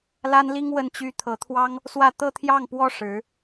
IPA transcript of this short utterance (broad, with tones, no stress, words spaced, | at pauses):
la˥nli˥ŋ wə˥˩nt͡ɕy˥ t̪ʰɤ˧˥t̪ʰwɑ˥ŋ | swä˥˧ t̪ɤ˥˧t̪ʰjɑ˥˩ŋpwɔ˥ ʂɻ̩˧˥